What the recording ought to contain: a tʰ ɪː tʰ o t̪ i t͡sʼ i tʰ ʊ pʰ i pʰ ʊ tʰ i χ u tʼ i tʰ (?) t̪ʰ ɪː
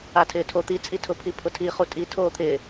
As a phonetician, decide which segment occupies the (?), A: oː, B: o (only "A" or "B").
A